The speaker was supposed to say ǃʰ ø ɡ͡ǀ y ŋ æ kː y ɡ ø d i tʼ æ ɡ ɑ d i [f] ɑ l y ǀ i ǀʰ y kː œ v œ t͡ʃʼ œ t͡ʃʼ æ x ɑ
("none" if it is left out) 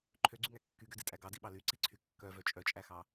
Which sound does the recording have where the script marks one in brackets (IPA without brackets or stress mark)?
ɓ